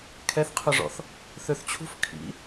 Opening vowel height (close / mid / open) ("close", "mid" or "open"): mid